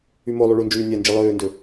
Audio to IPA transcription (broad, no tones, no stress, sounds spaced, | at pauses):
y m o lˠ u ɭ u n d͡ʒ yː nʲ æ n d͡ʒ i lˠ øː n d ø